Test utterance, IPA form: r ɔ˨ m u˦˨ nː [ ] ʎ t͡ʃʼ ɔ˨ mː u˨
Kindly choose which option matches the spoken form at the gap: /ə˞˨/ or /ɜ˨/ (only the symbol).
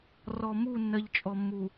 ɜ˨